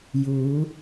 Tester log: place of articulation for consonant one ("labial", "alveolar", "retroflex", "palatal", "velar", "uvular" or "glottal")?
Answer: palatal